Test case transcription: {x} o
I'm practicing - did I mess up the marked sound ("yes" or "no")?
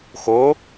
no